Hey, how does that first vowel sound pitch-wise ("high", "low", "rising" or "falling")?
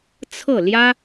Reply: falling